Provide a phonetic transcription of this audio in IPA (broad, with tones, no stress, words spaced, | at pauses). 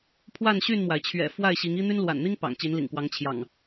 pʰwa˥˨nɕy˥˨nmwa˩ɪ̯ t͡ɕʰɥɛ̰˨˩ fwa˥˨ɪ̯ɕi˨˦ŋ i˦n̪y˦n lwa̰˨˩nn̪i˦ŋ pɑ̰˨˩ŋt͡ɕi˨˦nlḭ˨˩ŋkwɑ˨˦ŋ t͡ɕʰjɑ̰˨˩ŋ